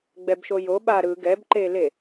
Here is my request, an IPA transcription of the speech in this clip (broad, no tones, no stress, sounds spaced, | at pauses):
ɡ͡b ɛ b ʃ o j o ɓ a ɾ ɯ ɡ ɛ b ǃ e l e